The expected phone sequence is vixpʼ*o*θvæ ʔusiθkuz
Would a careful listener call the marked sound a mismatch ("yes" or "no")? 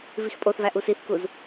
no